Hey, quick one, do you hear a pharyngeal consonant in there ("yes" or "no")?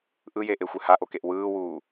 no